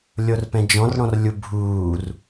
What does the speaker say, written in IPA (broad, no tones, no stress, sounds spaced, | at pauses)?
lʲ o r p ɛ̃ d͡ʒ ɔ̃ r ɽ ɔ̃ r lʲ u bʱ uː r